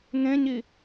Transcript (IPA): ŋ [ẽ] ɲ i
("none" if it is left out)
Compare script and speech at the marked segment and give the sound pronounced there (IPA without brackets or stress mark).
ẽ